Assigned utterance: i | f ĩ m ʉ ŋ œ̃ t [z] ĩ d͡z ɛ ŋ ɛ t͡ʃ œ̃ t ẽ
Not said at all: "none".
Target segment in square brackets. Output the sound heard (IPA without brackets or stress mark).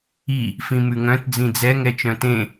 d͡z